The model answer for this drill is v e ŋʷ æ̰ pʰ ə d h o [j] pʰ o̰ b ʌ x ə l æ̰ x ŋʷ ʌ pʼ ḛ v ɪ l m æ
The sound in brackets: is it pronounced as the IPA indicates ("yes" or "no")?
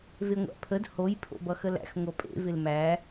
yes